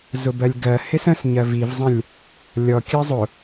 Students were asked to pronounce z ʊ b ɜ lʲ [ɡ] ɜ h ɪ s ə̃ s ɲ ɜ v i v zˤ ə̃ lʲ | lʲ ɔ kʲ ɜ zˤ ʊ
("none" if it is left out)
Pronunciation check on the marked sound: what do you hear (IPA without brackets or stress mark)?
ɡ